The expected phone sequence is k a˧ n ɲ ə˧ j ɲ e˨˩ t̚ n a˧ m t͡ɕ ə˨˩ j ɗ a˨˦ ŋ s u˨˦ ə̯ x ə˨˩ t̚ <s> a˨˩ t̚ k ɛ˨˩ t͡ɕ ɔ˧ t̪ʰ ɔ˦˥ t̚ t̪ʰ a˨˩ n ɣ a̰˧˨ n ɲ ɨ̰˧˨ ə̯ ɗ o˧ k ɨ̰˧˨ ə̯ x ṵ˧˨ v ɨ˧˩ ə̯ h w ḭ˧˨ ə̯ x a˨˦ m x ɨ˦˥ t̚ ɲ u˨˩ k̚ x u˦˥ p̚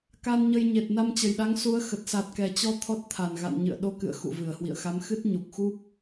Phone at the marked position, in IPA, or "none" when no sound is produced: s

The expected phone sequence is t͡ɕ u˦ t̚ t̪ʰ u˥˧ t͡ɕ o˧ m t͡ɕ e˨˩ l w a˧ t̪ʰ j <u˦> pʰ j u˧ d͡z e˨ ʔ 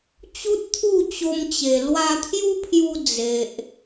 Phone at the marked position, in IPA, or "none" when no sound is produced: u˦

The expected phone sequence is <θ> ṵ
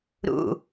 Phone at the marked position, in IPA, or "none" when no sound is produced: ɾ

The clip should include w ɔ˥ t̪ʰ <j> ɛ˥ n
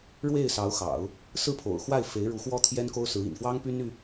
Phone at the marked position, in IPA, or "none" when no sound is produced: j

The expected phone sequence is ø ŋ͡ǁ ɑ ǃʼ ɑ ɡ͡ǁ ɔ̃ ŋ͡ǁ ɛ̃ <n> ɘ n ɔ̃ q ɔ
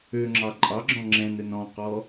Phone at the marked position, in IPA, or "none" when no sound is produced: n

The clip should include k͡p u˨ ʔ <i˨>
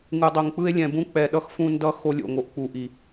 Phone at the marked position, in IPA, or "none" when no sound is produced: i˨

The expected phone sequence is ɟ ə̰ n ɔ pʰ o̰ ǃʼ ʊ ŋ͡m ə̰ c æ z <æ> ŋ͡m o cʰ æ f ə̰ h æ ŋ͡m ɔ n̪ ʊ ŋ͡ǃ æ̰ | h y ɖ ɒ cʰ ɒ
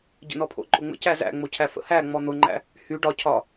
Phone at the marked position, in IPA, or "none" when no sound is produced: æ̰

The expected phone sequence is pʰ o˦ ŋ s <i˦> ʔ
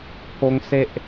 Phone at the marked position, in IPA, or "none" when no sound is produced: e˦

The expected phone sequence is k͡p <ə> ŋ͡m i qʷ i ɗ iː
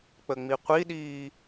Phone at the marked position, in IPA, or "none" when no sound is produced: ə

